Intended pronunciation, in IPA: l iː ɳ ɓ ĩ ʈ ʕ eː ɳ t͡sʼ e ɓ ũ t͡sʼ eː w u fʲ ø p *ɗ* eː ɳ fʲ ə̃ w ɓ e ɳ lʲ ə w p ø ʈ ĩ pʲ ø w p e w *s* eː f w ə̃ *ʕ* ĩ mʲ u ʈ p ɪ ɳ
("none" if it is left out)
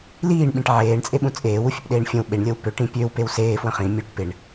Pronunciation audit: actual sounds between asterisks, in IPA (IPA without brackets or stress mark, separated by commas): ɗ, s, χ